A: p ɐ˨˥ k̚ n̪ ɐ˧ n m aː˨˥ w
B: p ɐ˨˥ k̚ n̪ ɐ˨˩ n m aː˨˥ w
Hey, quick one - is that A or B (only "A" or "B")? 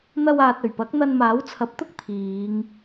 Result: A